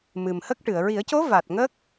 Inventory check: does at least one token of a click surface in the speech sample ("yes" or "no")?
no